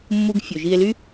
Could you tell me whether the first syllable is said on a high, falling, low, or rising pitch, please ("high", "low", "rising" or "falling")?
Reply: high